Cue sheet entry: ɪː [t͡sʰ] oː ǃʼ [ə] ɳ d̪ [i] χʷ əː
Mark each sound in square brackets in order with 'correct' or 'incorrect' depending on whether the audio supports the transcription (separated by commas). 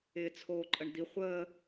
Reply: correct, correct, correct